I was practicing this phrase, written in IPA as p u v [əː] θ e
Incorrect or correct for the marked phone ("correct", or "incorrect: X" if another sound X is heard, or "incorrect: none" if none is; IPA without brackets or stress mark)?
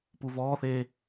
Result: incorrect: ɔː